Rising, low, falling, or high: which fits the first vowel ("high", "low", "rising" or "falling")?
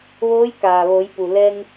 rising